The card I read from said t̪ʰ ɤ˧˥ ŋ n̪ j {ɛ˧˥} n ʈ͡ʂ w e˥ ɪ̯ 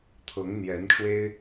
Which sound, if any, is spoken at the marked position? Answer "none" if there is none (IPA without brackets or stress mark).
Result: ɛ˧˥